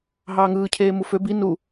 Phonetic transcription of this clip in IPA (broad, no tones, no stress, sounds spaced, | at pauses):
ɦ ɑː ŋ ɯː cʰ eː m u f ø b i n u